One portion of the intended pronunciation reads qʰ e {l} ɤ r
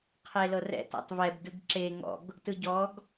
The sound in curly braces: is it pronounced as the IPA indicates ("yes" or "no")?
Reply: yes